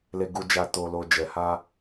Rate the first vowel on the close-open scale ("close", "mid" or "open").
mid